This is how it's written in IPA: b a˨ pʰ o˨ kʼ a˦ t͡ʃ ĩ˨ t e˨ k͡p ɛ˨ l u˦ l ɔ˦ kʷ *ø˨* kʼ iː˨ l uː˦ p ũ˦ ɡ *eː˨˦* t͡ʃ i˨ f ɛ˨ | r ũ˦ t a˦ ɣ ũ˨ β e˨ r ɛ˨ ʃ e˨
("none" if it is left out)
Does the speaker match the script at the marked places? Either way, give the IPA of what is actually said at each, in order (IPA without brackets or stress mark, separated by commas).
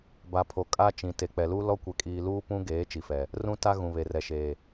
ɛ˨, eː˨˦